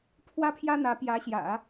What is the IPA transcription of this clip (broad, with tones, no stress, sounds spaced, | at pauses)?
pʰ w ä˥˩ pʰ j ä˥ n̪ ä˧˥ p j ä˧˥ ɕ j ä̰˨˩˦